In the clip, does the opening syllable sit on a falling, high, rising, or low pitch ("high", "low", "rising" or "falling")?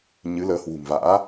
rising